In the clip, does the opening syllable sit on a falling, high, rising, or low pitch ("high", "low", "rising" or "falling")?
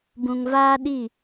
low